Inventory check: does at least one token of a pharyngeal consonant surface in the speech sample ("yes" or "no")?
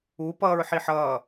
yes